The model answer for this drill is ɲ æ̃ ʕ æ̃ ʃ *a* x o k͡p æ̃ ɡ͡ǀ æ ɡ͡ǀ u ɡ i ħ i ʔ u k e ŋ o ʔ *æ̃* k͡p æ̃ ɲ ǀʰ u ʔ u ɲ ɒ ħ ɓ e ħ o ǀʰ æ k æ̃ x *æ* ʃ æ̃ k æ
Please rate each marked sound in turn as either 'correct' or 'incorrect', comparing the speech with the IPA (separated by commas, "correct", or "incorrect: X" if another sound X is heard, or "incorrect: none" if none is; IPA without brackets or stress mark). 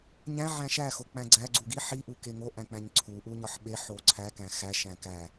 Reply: incorrect: æ, correct, correct